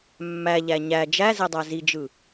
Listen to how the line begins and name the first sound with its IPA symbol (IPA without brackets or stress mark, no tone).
mː